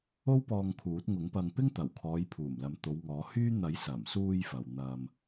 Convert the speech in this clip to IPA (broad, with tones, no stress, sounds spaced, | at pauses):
o˥ w p ɔː˧ ŋ kʰ uː˨˥ t̚ ŋ ʊ˨˥ ŋ p ɐ˧ ŋ p ɪ˥ ŋ t̪ ɐ˨˩ w kʰ ɔː˨˧ j pʰ uː˨˩ m l ɐ˨˥ m t̪ o˨˧ w ŋ ɔː˨˥ h yː˥ n̪ ɐ˨˥ j s ɐ˨˩ m s uː˧ j f ɐ˨ w n̪ ɐ˧ m